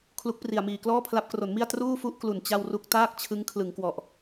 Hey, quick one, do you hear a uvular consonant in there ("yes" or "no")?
no